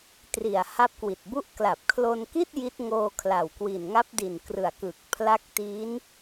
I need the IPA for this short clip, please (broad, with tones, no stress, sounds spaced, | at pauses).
t r i˨˩ a̯ h a˦˥ p̚ k w i˨˩ t̚ b u˥˩ ʔ k l a˨˩ p̚ kʰ l o˧ n k i˥˩ t̚ j i˦˥ t̚ ŋ oː˧ kʰ l a˨˩ w k w i˨˩ n ŋ a˦˥ p̚ d i˨˩ n k r ɯ˨˩ a̯ k ɯ˨˩ k̚ pʰ l a˦˥ k̚ t i˦˥ n